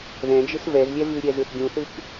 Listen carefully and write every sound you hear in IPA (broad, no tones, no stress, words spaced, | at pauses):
ðɛ̃d͡ʒɯs vɛzlʲɛ vʉɾʲɛzɯθ ɡʲũθɯk